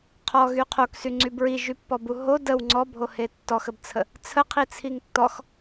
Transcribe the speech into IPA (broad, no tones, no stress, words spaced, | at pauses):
qʰɔɣy qʰoksyŋ͡ǀy bɹiʒypːɔbu ɦo dəw ŋ͡ǀɔbʱohe tːɔxəbt͡sʰə | t͡sʰəqʰit͡sʰiŋ tːɔx